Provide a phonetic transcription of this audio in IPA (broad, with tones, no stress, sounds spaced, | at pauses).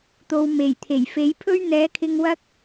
t̪ o˧ w m e˨˩ j t̪ʰ e˨˩ j f e˨˥ j pʰ ɵ˥ ɥ n̪ ɛː˨˥ kʰ ɪ˧ ŋ w ɐ˥ k̚